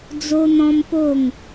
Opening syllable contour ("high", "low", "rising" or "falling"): high